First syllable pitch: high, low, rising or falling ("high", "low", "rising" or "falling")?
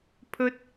high